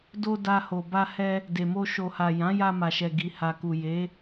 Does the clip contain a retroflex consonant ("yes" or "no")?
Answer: no